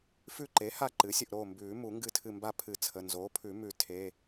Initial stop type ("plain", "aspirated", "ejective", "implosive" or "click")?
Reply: click